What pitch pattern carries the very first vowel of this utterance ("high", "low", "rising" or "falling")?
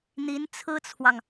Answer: rising